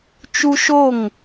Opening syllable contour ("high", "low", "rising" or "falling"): high